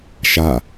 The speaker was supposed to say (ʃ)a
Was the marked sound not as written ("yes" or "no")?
no